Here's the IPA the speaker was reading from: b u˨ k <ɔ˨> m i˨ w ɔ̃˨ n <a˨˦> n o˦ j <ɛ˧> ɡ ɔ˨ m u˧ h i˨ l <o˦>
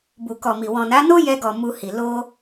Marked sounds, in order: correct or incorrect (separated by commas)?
correct, correct, correct, incorrect